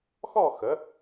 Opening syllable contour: falling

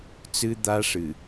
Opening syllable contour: high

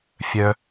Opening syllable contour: low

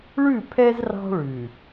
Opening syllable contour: falling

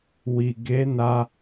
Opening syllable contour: low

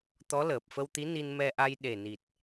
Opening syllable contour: rising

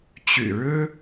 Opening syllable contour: low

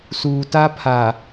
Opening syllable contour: low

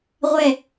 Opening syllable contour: falling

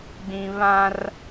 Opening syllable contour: low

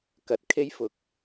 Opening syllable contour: rising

